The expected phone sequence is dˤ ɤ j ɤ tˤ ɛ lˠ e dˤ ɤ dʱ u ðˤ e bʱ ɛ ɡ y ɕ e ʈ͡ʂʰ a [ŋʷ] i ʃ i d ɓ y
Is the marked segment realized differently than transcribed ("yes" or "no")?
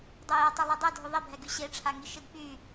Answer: yes